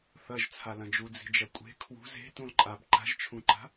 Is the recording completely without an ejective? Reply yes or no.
no